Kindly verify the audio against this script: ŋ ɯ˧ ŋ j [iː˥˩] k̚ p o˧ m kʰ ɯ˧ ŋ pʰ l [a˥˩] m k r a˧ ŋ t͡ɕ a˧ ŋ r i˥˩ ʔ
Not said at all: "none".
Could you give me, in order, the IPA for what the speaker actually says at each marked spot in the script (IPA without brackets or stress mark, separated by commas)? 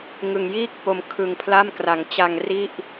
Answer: iː˥˩, a˥˩